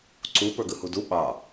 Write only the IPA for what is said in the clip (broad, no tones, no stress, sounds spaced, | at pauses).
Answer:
ǀ u p ə˞ ɡ ɯ h u d u ɓ ɑ